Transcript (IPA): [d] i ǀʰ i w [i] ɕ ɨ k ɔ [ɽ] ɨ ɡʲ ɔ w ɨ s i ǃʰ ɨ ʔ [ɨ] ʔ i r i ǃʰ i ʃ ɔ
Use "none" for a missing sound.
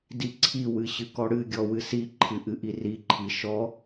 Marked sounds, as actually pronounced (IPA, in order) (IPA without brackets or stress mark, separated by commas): d, ɨ, ɽ, ɨ